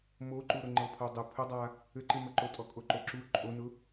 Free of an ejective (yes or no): no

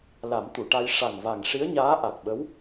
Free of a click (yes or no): yes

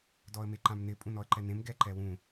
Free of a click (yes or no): no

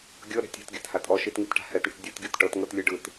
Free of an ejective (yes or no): no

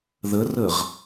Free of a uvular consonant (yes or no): no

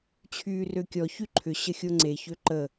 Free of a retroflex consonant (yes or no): yes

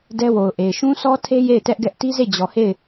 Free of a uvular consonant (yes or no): yes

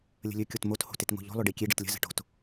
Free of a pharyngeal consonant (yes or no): yes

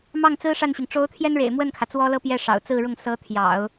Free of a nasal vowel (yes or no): yes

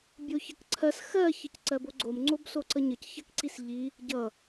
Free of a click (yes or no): no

